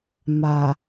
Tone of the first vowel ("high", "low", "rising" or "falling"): low